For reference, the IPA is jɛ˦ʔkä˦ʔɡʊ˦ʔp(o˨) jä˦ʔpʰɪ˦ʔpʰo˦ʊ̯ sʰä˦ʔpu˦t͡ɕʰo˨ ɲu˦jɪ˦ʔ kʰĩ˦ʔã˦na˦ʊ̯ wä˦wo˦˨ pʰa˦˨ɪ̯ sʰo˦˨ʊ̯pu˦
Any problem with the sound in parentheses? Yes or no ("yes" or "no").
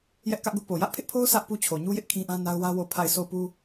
no